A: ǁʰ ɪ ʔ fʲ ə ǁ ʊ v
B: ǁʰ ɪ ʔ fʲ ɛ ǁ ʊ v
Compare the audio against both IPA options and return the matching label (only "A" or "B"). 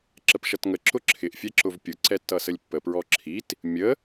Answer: B